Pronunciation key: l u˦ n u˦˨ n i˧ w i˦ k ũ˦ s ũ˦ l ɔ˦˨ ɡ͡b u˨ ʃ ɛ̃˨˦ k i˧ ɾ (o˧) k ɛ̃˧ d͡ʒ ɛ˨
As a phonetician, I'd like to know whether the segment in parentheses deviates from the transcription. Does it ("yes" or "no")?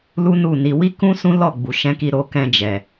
no